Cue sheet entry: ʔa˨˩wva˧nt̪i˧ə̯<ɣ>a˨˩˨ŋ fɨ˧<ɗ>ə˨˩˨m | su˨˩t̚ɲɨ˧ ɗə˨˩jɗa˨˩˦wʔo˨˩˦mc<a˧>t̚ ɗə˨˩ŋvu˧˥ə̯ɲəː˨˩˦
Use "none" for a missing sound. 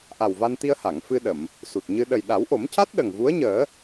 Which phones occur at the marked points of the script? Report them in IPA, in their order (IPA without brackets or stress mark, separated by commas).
h, ɗ, a˦˥